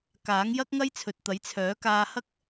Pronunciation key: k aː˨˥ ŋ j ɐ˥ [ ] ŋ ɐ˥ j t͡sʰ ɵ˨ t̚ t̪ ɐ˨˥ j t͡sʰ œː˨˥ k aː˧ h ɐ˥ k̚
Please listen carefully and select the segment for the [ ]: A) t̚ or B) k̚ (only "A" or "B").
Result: B